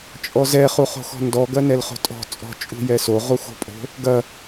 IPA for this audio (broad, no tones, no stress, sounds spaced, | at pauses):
t͡ʃʼ ɔ z ɛ χ u χ o̤ x ɔ̤ n d ɔ ɡ ɐ n ɛ l χ o̤ tʼ ɔ̤ t͡sʼ ɔ̤ t͡ʃʼ ṳ j ɛ s o ʁ u x o̤ pʼ o̤ | ɡ ɐ